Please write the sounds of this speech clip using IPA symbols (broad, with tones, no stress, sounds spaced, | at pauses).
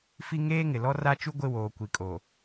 f i˦ ŋ eː˦ ŋ ɪ˨ l ɔ˦ r a˦ t͡ʃ u˦ ɡʷ ɪ˦˨ w oː˨ kʷ i˨ kʼ o˨